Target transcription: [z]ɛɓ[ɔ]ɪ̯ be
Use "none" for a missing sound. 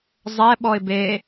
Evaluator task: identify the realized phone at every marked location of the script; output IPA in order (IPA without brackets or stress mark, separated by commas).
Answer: zˤ, ɔ